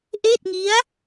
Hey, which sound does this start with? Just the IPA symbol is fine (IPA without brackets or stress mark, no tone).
ʔ